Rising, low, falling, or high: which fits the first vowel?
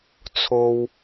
low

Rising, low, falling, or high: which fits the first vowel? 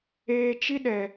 low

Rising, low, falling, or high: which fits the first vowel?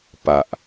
low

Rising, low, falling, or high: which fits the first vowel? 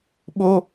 high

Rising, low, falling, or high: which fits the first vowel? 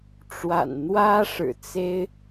low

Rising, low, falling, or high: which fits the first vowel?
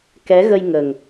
rising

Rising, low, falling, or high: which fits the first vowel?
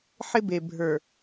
high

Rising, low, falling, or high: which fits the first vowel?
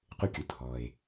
high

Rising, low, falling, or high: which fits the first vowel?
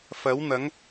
rising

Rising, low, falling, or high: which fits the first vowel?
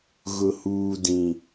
low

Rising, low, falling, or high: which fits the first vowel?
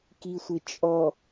low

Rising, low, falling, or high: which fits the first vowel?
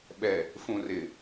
low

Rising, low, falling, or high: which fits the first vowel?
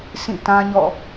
falling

